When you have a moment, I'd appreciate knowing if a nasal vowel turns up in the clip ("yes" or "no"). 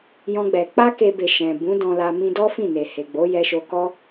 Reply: yes